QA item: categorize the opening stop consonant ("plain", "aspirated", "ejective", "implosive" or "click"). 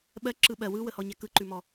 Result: implosive